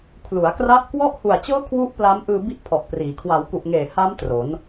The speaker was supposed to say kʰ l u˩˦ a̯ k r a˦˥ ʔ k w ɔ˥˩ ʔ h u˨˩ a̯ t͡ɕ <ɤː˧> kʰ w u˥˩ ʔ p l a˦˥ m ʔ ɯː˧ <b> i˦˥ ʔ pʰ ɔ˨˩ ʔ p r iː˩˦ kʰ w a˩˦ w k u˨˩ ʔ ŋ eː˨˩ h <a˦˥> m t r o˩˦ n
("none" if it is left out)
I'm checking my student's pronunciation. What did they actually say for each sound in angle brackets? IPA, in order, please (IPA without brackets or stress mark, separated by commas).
ɤː˦˥, b, a˦˥